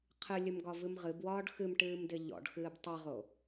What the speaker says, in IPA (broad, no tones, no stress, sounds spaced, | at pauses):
qʰ ɨ lʲ ɨ m ɡ ɒ v ɨ m ʁ ɨ b w ɒː ɖ x ɨ m ʈ ɨː m d ɪ ʎ ɔ̰ ɖ x ɨː b tˤ ɨ ʁ o